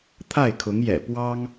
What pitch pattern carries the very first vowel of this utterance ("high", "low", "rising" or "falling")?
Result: falling